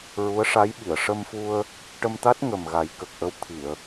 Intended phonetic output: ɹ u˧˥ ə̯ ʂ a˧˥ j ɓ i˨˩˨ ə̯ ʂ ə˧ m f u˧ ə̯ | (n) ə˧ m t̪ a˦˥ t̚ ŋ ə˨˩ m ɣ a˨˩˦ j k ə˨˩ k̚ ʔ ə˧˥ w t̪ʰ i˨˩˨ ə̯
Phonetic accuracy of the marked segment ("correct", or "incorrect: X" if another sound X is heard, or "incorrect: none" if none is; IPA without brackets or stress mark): incorrect: ʈ